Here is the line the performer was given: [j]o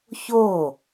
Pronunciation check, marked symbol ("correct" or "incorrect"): incorrect